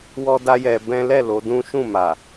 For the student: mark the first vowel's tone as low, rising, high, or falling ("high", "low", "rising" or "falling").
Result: high